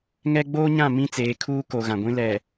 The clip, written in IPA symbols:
ŋɛ˦ ɡ͡boː˦ɲã˦˨ mĩ˦t͡seː˨˦ kʰuː˦ko˨ ɣã˨ɡʷĩ˦ lɛ˨

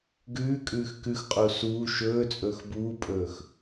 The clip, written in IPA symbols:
ɡʉːkʼʉːx kʉxqʼu suː ʃɵːt͡sʼɵːx buːpʼɵːx

